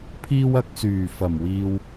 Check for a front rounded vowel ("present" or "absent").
present